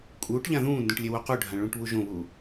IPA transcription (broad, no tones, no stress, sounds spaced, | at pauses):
kʼ uː ʈ ʎ ã ð ũː n d ũ ʈ lʲ e w o q u ɖʱ ã ɭ ũ ʈ β u ʒ õ β u